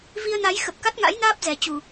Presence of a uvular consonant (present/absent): absent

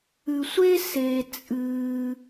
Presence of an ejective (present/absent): present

